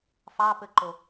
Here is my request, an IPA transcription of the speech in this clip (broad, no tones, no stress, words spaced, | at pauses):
fɑpɘǃo